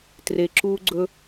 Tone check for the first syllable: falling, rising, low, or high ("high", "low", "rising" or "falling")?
low